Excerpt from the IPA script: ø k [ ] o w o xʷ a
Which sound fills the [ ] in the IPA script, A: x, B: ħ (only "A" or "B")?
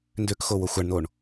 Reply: A